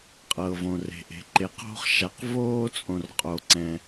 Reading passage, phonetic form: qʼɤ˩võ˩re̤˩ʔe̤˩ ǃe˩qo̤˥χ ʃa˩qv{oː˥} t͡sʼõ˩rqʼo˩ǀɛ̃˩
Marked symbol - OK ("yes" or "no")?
yes